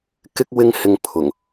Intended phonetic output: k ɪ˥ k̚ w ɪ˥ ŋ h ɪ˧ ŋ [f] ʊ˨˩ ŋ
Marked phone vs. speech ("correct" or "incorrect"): incorrect